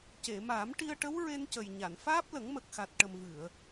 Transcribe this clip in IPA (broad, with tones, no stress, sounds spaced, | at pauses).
c e˨˩˨ m aː˨˩˦ m ʈ i˧ ə̯ ʈ ə˧˥ w ɹ e˧ n c ə˨˩ j ɲ a˨˩˨ n f aː˦˥ p̚ l ə˨˩˦ ŋ m ə˨˩ k̚ x a˨˩ t̚ ʈ ə˨˩ m v ɨ˨˩˨ ə̯